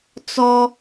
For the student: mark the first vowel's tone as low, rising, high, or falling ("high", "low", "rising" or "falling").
high